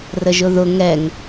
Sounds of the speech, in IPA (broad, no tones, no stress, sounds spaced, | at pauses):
r ə ʒ ʊ ð ʊ ŋ ɛ ŋ